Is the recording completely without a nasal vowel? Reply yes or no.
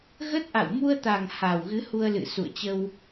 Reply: yes